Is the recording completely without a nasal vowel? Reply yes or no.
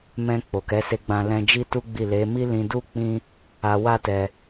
no